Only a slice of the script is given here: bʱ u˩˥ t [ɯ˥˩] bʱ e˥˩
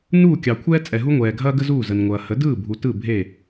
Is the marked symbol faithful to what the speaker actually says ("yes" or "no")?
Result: yes